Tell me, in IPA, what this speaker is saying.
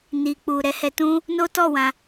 n i˨ k͡p u˨ ɾ ɛ˧ h ɛ˧ t ũ˦ | n o˦ t ɔ˦˨ w ã˧

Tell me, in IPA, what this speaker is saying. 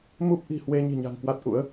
m u˦˥ p̚ ʔ i̤˨˩ h w e˧ ɲ i̤˨˩ ɲ a̤˨˩ ŋ k w a˦˥ t̚ ʔ ṵ˧˥ ə̯

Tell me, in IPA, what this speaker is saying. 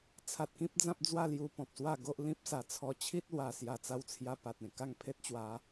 t͡sʰ a˨ t̚ k ĩ˦ p̚ d͡z ã˦ p̚ d͡z w a˥˧ l j u˧ p ɔ̃˨ p̚ s w a˥˧ ɡ o˦ ʔ l ĩ˦ p̚ s a˨˩ t͡sʰ ɔ˧ t͡ɕʰ i˦ t̚ l w a˨˩ s j a˨˩ t͡s a˧ w t͡sʰ j a˧ p a˨ t̚ ẽ˨˩ k a˥˧ ŋ pʰ e˦ t̚ t͡ɕ w a˨˦

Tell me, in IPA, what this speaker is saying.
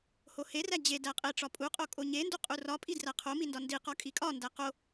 h o h e r æ d͡ʑ e d æ qʼ e ʈ͡ʂ ɒ pʼ u qʼ o kʼ o ɲ e n d u qʼ u r ɒ pʼ i d r æ qʰ o m i n d ɒ n d i q ɒ kʼ i kʼ ɒ n d æ q o

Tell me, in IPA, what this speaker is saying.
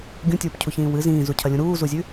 ɡʲ ũ tʲ uː p cʰ u ç ĩː w ɨ z ĩː z u cʰ ɐ lʲ ũ ɾ uː z u zʲ ʉ

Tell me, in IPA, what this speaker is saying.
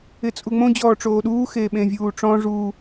ɪ t͡sʼ u ŋ͡m õ d͡ʑ ɔː ʈ͡ʂ oː ɗ uː x eː ɓ ẽ vʲ uː ʈ͡ʂ ɔ̃ ʐ uː

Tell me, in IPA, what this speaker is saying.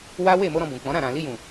w a˦ w e˦˨ m o˧ ɾ ɔ̃˧ b ũ˨ k͡p ɔ̃˨˦ ɾ ã˦˨ ɾ ã˨ l i˧ j ũ˨

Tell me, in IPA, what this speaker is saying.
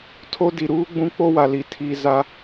tʰ o˦ d i˨ ɾ uː˦ ɡ͡b ũ˦ k͡p o˦ w a˨ l i˨ tʰ i˨ z a˦

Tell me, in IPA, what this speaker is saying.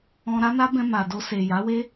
ɔ̃˧ ɾ a˦ n a˦ b ɛ̃˧ m a˨ d o˧ s e˨ j a˨˦ w e˦

